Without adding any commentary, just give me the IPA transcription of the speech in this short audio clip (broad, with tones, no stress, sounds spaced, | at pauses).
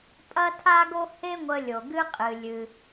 pʼ ɐ˥ tʰ a˥ ɡ o˥ h e˥ ŋʷ ə˧ lʲ o˩ ɡ ɨ˧ qʼ ɨ˩ lʲ ɨ˩